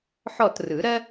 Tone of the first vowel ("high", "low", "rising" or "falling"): falling